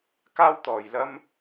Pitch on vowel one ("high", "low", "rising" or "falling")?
high